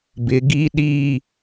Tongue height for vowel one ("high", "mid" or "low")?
high